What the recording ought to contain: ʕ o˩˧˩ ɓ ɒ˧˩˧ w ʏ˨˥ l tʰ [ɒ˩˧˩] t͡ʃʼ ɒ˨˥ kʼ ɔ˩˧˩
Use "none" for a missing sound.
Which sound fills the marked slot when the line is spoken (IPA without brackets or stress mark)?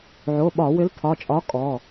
ɒ˩˧˩